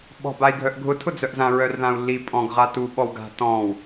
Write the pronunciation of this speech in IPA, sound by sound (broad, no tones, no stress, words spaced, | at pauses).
ɓɔ̤bai̯ɡʱœʔɡʱʊ tʰʊd͡zœʔzã ɹœrðãu̯lːi pʼɔ̃ɡ ʁatu ɓɔwɡa̤ tɔ̃w